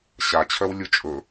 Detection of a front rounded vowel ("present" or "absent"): present